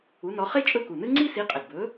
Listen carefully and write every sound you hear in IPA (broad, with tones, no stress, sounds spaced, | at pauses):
u˨˥ n ɔ˨˥ χ e˥ t͡ʃʼ ɵ˥˨ k u˨˩ n ɨ˥ ŋ͡ǀ i˥ s i˨˥ qʼ ə˨˩ d b ɵ˨˥